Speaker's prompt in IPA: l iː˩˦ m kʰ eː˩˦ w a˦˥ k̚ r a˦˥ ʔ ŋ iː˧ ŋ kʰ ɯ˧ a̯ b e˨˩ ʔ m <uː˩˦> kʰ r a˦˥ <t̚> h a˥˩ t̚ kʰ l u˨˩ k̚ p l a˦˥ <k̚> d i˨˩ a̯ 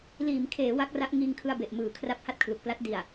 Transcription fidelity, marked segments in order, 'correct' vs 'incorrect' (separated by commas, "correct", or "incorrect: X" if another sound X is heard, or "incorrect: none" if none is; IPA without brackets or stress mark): incorrect: ɯː˩˦, incorrect: p̚, incorrect: t̚